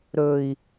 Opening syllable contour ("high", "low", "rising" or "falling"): low